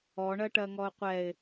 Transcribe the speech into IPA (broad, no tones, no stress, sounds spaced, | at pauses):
ɔ ɳ ɜ ʈ ɜ ŋ ɔ ʊ̯ qʷ ɛ ɪ̯